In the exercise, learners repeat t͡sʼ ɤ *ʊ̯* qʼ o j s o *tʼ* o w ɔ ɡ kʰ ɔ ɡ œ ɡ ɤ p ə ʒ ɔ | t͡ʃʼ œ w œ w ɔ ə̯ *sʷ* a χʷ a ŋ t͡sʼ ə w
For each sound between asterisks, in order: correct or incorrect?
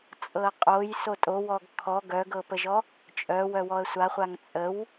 incorrect, correct, correct

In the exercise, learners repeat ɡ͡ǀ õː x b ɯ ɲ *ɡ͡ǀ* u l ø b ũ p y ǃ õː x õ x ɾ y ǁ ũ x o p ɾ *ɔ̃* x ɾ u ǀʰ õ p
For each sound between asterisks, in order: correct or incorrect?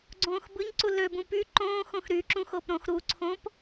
incorrect, incorrect

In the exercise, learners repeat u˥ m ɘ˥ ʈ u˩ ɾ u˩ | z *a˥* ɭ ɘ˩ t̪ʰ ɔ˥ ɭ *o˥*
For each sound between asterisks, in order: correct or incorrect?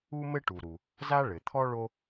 correct, correct

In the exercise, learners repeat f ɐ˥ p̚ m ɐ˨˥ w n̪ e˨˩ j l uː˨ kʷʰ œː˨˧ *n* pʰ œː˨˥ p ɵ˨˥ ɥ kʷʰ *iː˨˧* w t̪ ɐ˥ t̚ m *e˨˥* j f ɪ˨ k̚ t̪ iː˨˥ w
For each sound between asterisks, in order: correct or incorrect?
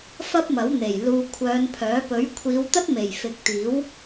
correct, correct, incorrect

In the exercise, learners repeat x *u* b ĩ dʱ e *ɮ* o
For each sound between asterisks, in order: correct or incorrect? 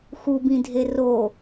correct, incorrect

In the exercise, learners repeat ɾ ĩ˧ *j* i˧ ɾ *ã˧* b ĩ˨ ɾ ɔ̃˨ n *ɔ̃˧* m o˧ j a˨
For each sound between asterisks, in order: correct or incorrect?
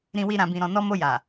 incorrect, incorrect, incorrect

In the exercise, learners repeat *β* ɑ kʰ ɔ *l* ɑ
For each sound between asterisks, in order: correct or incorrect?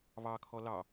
correct, correct

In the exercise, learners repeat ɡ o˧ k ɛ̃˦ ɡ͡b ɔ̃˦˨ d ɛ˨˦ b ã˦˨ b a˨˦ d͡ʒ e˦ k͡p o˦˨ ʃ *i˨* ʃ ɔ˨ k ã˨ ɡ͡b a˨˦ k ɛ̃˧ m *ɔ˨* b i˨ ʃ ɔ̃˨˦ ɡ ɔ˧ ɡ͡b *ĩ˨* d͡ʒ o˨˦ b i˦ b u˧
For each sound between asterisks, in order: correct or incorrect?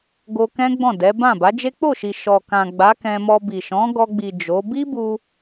correct, incorrect, incorrect

